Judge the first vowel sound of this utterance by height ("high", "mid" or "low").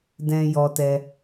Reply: mid